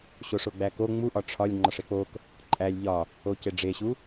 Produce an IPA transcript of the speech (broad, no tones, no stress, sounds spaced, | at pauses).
ɕ o ʂ o ɡ͡b æ k o ŋ͡m u ʔ ɒ ʈ͡ʂʰ ɒ lʲ ŋ͡ǃ ɒ ʂ e k͡p o k | ǃʼ æ lʲ ʎ ɒ | o c e ɖ͡ʐ e ɕ u